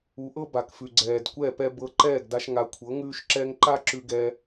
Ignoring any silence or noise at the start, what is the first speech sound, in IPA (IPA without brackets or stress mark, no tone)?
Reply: u